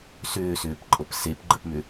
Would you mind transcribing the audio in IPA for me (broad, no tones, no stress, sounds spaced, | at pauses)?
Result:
s ʏː s ʏː p ǃʼ ɤ p s e p ɡ͡ǃ ə p m ʏ